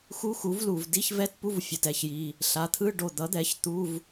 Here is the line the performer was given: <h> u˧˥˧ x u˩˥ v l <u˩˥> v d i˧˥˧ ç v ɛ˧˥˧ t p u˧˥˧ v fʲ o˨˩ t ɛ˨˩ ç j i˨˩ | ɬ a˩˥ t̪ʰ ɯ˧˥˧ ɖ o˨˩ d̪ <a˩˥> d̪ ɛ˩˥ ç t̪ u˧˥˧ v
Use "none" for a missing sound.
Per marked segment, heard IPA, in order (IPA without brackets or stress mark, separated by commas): x, u˨˩, ʌ˩˥